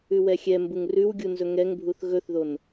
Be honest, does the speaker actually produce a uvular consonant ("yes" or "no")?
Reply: no